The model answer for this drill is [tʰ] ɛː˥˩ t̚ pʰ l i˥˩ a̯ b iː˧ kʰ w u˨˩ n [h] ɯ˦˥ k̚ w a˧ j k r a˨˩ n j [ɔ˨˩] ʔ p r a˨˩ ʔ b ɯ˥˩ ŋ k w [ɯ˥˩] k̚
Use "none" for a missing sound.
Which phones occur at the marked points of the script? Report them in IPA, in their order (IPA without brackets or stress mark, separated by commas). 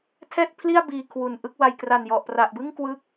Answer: tʰ, ʔ, ɔ˨˩, ɯ˥˩